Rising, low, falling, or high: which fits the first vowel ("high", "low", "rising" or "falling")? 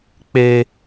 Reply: high